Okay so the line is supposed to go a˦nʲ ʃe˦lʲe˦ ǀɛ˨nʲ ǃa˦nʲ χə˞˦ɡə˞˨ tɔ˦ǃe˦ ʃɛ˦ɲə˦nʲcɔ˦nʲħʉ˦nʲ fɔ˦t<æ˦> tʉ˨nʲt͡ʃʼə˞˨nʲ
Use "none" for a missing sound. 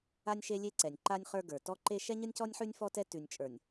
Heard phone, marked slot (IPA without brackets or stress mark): ɛ˦